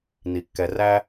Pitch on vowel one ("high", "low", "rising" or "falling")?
low